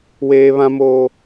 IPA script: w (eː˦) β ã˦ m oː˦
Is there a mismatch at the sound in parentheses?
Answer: no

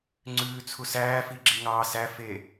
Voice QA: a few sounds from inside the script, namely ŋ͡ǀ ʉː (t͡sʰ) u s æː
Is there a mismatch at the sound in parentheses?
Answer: no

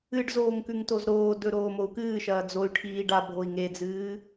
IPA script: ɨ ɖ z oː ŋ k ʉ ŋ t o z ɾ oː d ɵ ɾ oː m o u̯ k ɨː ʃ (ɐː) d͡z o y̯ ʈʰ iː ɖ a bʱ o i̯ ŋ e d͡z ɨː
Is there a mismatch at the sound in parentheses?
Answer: no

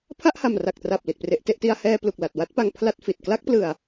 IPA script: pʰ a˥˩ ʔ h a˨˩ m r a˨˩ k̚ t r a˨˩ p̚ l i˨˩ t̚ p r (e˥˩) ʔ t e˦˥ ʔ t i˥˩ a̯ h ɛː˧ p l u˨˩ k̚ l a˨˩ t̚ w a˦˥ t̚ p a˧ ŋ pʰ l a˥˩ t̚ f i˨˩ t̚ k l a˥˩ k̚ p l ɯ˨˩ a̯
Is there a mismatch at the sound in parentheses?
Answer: yes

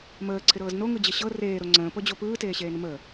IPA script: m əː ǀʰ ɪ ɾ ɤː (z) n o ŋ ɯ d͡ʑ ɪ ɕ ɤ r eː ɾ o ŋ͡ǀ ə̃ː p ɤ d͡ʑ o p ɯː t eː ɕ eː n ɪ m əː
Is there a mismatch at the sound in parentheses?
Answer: no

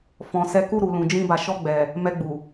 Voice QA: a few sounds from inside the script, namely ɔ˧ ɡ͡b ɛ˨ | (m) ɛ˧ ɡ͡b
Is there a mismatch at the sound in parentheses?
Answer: no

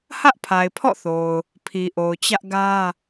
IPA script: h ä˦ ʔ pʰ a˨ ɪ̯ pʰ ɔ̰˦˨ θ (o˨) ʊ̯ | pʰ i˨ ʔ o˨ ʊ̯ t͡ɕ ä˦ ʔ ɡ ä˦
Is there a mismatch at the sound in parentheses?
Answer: no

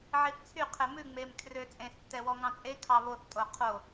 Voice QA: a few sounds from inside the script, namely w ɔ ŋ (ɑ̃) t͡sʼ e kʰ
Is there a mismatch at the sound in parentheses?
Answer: no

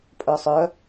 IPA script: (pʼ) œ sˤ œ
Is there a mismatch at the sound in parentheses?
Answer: no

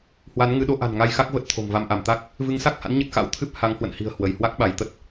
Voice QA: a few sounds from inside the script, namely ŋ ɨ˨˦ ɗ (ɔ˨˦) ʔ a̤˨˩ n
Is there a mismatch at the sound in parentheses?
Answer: yes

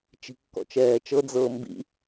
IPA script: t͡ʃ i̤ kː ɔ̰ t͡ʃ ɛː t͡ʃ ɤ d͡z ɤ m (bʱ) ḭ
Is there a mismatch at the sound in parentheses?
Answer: yes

